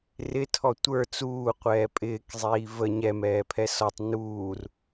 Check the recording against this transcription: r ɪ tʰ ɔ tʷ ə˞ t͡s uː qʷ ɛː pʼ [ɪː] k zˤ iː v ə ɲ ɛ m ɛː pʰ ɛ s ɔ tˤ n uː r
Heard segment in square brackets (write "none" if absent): ɪː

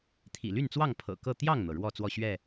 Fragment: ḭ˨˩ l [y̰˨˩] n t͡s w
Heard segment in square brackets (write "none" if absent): y˥˨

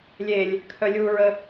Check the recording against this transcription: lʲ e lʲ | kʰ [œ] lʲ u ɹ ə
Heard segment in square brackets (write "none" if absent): œ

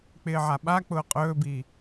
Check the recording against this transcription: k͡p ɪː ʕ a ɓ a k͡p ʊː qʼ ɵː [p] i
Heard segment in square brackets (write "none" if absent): b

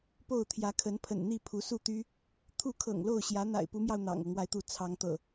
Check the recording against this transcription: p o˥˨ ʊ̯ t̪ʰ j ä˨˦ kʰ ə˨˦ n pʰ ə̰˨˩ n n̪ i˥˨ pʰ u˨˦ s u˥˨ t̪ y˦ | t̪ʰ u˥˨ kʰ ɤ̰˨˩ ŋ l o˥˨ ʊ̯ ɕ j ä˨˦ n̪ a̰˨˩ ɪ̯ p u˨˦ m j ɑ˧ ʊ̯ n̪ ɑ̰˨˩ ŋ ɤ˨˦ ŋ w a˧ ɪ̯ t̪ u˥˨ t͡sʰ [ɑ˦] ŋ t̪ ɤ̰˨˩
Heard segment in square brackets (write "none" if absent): ɑ˨˦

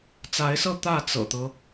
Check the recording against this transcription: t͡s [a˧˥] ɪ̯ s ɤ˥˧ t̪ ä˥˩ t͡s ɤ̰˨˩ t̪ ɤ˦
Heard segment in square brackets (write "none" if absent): a˧˥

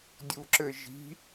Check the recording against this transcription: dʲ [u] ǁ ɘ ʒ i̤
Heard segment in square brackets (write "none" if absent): u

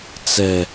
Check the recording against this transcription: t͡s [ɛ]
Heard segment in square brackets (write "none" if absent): ɛ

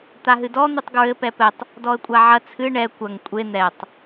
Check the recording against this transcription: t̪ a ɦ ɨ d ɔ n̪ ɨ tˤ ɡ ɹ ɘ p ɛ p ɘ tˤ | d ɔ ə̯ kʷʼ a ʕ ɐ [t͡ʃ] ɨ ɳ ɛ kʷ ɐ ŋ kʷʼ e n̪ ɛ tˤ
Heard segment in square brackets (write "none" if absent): t͡sʰ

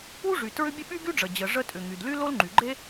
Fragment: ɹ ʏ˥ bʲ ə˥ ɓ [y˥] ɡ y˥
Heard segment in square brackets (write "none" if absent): y˥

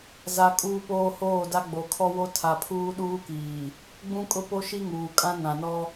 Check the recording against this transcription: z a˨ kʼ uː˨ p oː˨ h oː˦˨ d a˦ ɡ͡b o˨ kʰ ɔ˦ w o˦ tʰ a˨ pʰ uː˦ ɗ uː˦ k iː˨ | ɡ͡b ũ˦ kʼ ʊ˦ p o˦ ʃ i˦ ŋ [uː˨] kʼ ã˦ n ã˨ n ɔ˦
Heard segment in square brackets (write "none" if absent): uː˨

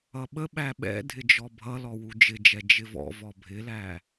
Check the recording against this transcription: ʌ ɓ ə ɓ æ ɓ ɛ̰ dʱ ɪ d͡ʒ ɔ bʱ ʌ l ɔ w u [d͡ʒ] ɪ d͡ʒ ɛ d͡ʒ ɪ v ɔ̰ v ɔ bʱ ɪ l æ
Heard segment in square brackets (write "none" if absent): d͡ʒ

